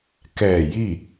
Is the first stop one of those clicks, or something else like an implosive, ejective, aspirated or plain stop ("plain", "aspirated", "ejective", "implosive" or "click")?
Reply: plain